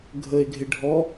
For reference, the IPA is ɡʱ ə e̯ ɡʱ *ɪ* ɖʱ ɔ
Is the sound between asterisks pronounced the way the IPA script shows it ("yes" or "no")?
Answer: yes